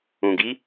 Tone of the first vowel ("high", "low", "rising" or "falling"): low